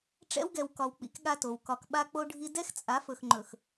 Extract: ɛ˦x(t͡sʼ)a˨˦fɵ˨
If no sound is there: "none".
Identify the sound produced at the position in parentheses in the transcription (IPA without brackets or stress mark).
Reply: t͡sʼ